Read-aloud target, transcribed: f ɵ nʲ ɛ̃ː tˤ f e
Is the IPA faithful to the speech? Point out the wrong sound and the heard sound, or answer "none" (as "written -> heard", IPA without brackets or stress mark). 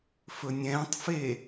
none